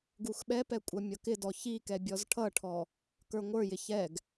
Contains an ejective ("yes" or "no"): yes